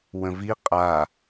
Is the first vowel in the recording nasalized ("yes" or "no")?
yes